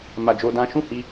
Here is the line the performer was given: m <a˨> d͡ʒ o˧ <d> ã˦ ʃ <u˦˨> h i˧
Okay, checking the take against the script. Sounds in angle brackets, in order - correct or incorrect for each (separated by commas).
correct, correct, incorrect